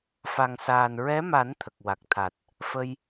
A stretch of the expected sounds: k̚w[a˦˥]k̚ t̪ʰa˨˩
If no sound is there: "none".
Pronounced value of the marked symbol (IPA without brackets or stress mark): a˨˩